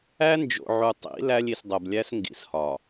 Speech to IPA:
æ˦ n d͡ʒ o̰˨ ʕ u˨ tˤ ḭ˨˦ l æ˦ lʲ i˨ s dˤ o˨ b lʲ æ˦ s ŋ ɡ ḭ˨ s h ɒ˨

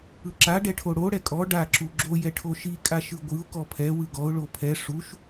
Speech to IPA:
ɯ ǁ a ɖ ɛ ʈʰ o ɽ o ɽ ɛ kʼ ɔ ɖ a ǁ u ɡ͡ǁ o j ɛ ʈʰ o ʃ i kʼ a ʃ ɯ ɡʷ ɯ ʊ̯ k ɔ pʰ ɛ w ɯ ɡ ɔ ʊ̯ ɭ o pʰ ɛ ʂ u ʃ

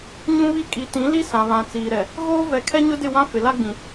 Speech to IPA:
ɲ ũ˦ β i˦ kʼ i˨ t ĩ˨˦ l i˦ s ã˨ β ã˨ t͡s iː˨ ɾ ɛ˨ | ɣ oː˦ v ɛ˨ kʰ ɛ˦ ɲ ʊ˦ d ɪ˦˨ w ã˦ f ɪ˨ l a˦ ɡ͡b ĩ˨

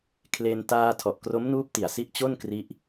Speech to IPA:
kʰ l e˧ n t aː˧ tʰ ɔ˨˩ ʔ k r o˦˥ m n uː˦˥ p̚ t i˨˩ a̯ s i˦˥ ʔ t͡ɕ o˥˩ n k r i˦˥ ʔ

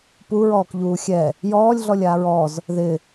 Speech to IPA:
p u ɹ ɔː k ʎ uː xʲ ɛ | j ɔː lʲ ɮ ɔ lʲ aː ɹ ɔ z | ð ɪ

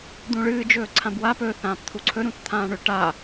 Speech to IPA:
d̪ ũ ɭ ɨː d͡ʒ ɵː ǀʰ ã b w a p ɵ θ ãː p t̪ʰ u ǀʰ ɵ ɾ ũ t t̪ʰ ãː ɳ ɵ ʈ a

